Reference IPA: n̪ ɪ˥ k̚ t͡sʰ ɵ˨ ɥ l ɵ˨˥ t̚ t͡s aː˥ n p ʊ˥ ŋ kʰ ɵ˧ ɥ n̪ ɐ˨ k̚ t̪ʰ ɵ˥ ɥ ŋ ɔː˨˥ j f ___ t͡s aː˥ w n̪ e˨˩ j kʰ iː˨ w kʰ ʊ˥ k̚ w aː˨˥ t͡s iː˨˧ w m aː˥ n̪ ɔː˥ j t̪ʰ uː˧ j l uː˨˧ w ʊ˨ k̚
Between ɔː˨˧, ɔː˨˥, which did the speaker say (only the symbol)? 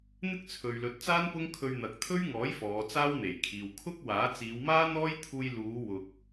ɔː˨˧